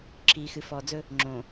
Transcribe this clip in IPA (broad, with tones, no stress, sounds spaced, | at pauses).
ǁʰ iː˨ x ɨ˨ f ɔ˨ d͡z ɵ˦ | ŋ͡ǁ õː˨